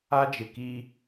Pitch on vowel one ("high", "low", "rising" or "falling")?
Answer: high